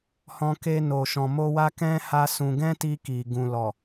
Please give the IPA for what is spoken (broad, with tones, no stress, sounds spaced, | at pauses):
h ɔ̃˧ k e˧ n o˨ ʃ ɔ̃˨ m o˧ w a˦ k ɛ̃˦ h a˦ s ũ˧ ɡ ɛ̃˦ t i˧ k i˨ ɡ ũ˨ l ɔ˨